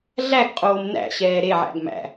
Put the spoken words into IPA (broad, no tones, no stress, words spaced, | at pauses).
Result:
ɮæɡqʼoːm næ̰ɕɛː ɾeʕæ̰ɡ mæ̰